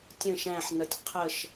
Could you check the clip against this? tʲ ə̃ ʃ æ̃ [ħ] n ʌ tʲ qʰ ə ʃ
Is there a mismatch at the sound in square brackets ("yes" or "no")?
no